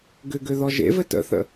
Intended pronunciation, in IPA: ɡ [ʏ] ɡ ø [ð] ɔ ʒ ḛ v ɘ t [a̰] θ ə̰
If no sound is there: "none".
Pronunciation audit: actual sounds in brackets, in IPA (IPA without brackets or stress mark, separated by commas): ʏ, ð, ə̰